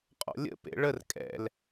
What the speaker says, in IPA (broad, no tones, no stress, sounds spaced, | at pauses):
qʼ ɔ̰ lʲ ə̰ p ḛ ɭ ə r kʼ ɛ̰ l